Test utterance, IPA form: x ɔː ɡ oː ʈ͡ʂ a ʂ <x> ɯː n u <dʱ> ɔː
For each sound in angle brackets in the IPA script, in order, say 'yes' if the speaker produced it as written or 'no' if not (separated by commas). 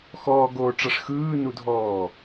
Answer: yes, yes